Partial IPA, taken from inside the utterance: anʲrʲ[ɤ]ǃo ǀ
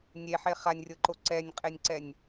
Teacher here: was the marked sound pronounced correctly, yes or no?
yes